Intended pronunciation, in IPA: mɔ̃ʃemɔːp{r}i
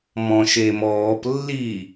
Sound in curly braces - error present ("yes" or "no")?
yes